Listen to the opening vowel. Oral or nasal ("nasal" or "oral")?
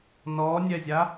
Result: oral